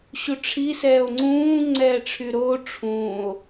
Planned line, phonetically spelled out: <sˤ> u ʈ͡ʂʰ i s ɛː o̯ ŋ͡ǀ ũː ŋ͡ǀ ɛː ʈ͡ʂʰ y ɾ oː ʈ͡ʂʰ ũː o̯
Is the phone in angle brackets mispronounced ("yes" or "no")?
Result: yes